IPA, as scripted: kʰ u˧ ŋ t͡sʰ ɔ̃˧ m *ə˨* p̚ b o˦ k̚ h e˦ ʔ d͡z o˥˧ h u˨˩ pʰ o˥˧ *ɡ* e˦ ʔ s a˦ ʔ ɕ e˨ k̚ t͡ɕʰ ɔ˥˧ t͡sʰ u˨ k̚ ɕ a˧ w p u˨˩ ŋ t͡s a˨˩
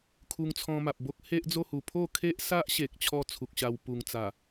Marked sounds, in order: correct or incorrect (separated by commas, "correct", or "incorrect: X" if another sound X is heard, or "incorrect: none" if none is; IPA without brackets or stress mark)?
incorrect: a˨, incorrect: kʰ